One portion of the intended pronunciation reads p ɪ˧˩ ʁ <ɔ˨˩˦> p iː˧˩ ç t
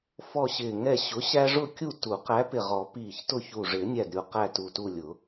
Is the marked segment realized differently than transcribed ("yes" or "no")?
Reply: no